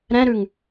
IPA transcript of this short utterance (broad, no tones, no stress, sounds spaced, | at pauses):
ɾ ɛ̃ ɾ ʉ ŋ